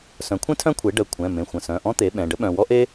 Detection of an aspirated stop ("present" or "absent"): present